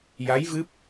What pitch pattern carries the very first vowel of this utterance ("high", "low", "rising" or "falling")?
rising